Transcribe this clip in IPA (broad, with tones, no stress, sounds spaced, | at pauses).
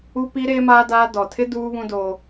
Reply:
u˦ p i˦ ɾ eː˦ m aː˦ d aː˦ d ɔ˨ tʰ ɪ˦ d uː˦ β ũ˦ d oː˦